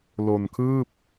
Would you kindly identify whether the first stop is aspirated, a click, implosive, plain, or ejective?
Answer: aspirated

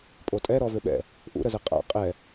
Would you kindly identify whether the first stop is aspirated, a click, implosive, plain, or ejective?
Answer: ejective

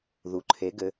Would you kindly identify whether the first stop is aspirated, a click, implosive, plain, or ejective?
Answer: click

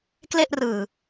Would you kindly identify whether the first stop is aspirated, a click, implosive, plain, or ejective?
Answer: plain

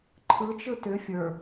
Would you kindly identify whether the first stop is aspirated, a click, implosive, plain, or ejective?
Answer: click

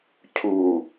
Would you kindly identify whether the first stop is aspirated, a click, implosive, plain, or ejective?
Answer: aspirated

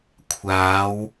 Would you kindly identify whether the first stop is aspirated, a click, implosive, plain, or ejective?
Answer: aspirated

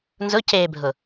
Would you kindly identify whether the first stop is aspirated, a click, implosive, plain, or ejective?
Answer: plain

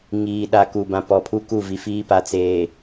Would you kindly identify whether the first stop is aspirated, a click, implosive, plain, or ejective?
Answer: implosive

